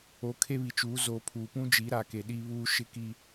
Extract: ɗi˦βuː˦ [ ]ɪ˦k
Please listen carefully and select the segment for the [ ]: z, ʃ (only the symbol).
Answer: ʃ